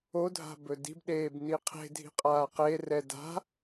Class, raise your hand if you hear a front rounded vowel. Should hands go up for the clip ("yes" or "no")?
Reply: no